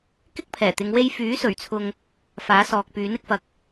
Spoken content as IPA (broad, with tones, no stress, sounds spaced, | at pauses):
k ɪ˥ k̚ pʰ ɛː˨˩ t̪ ɪ˨˧ ŋ w e˧ j f yː˨˥ s ɵ˨˩ ɥ t͡sʰ ʊ˨ ŋ | f aː˨˥ s ɔː˨ k̚ p yː˨˥ n ɪ˧ k̚ f ɐ˨ k̚